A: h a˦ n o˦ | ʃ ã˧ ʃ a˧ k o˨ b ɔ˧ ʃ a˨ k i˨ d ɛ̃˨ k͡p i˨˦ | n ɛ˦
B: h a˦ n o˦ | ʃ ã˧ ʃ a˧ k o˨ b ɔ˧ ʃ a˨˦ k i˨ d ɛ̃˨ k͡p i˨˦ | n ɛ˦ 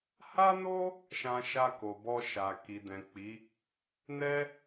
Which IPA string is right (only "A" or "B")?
A